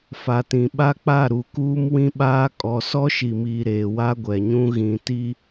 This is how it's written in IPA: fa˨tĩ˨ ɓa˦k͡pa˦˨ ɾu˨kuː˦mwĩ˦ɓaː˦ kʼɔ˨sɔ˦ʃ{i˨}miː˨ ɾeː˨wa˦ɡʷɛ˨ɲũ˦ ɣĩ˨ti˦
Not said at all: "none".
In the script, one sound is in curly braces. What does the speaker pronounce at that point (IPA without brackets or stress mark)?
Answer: i˨